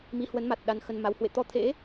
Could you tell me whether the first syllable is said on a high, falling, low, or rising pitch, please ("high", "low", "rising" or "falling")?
rising